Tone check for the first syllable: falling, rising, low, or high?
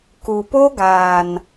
low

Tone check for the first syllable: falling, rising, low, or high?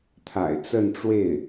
low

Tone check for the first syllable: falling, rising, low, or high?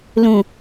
low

